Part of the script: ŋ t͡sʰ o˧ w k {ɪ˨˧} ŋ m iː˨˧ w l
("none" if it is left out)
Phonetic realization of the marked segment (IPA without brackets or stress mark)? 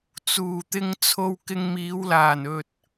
ɪ˧